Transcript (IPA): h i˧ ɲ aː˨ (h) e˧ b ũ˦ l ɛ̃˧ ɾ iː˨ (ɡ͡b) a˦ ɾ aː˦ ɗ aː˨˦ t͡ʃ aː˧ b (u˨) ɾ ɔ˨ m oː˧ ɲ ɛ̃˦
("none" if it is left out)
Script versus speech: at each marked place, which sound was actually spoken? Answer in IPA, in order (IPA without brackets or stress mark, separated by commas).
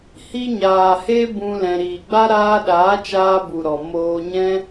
h, ɡ͡b, u˨